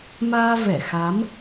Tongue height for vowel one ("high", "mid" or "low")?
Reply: low